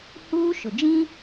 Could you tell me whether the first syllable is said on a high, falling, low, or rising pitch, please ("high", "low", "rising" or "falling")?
high